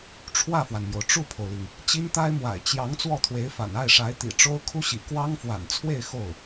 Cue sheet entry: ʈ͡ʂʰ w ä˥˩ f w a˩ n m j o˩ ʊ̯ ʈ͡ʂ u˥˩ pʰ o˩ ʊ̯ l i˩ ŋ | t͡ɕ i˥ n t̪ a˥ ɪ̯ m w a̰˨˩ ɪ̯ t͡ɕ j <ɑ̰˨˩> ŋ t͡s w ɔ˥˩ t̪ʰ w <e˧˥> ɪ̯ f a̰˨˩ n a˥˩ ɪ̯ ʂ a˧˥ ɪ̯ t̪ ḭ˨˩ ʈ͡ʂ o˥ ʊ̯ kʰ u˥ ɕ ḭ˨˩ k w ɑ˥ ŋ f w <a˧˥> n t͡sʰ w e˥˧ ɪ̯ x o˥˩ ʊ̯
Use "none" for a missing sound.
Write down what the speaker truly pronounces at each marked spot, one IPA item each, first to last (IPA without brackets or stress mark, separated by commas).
ɑ˧˥, e˧˥, a̰˨˩